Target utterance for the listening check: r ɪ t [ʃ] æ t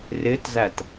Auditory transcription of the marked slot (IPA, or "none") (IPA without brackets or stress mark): z